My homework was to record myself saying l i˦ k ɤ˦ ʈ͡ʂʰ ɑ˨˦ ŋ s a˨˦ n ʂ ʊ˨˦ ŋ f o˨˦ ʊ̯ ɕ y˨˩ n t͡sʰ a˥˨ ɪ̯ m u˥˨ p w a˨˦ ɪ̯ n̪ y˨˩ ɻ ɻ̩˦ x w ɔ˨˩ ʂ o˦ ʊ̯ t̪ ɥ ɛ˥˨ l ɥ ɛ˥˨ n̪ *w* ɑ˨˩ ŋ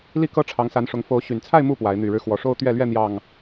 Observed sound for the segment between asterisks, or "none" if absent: j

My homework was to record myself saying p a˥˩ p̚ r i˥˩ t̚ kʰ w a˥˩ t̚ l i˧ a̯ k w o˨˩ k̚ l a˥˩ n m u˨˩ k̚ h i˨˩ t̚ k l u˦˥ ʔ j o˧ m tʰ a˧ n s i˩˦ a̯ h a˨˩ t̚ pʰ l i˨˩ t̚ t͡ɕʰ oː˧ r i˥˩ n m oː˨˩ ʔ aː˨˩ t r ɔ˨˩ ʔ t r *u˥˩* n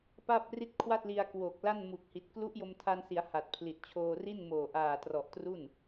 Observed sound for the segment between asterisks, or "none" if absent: u˥˩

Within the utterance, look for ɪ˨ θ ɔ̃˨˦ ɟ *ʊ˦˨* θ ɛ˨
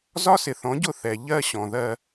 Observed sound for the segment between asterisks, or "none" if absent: ʊ˦˨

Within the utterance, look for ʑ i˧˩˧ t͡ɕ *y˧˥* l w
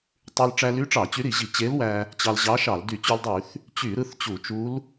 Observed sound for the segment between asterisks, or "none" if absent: e˧˥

